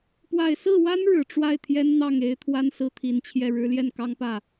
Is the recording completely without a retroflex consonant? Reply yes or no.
no